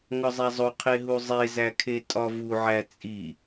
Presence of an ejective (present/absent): present